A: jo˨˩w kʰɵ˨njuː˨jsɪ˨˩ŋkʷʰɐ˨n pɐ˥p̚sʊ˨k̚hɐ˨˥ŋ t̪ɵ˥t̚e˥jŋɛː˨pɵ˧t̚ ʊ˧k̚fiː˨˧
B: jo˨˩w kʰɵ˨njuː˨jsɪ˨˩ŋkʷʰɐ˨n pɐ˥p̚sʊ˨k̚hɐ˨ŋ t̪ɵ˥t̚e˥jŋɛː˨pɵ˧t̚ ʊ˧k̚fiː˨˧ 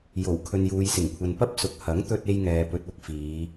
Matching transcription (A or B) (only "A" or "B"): A